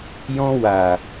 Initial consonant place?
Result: palatal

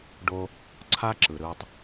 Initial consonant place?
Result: retroflex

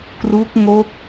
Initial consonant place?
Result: velar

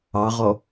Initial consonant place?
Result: uvular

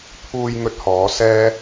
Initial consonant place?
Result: labial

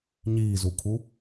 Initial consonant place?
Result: palatal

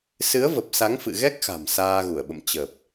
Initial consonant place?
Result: alveolar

